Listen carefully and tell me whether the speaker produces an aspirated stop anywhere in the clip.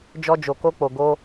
no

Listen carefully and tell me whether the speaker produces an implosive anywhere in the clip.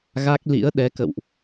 yes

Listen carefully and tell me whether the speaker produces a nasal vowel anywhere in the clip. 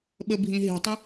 yes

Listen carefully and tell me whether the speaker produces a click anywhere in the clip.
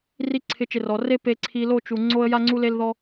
yes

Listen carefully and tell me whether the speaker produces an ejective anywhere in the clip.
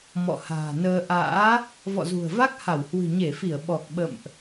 no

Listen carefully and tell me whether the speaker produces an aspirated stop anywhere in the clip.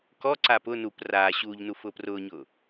no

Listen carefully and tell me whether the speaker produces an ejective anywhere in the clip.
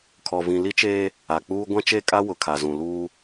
yes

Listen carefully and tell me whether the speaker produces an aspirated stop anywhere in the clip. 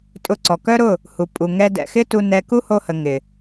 no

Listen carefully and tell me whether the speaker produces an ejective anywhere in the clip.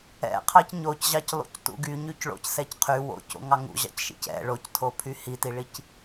no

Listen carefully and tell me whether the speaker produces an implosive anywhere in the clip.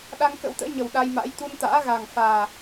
yes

